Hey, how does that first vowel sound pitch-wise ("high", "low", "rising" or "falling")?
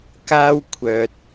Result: high